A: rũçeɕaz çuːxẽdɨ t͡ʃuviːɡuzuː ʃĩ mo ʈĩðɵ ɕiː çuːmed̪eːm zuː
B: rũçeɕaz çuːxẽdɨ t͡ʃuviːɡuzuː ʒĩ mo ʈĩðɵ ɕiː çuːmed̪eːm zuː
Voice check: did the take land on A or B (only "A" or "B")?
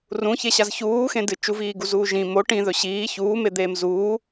B